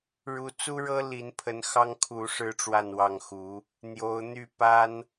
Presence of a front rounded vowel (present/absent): present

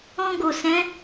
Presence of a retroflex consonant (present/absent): absent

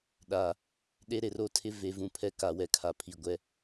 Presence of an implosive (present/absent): present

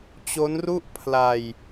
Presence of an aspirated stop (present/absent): present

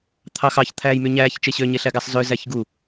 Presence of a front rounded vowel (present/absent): present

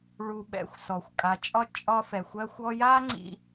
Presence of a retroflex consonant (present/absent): present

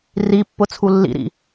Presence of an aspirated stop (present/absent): present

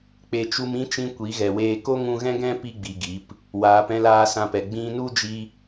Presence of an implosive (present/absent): absent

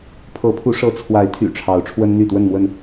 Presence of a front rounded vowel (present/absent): present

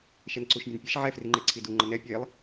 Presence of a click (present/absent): present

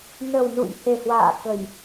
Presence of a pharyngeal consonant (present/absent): absent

